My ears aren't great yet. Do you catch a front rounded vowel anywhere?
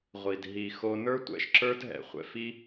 no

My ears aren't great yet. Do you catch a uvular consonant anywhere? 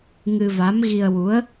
no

